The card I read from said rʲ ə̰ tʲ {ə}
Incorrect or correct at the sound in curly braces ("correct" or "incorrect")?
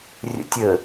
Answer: correct